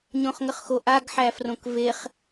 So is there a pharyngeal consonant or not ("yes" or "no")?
yes